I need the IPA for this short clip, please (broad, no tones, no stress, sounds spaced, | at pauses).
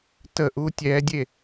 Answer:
t ə ʔ u tʲ ɛ dʲ e